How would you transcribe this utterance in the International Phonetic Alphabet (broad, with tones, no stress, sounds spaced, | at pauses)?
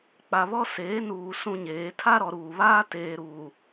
k͡p a˨ β ɔ˦ s eː˨˦ n uː˨ s ũ˦ ɲ eː˨˦ tʰ a˦ ɾ ɔ˨ ɾ uː˨ β aː˦ t eː˨ ɾ uː˨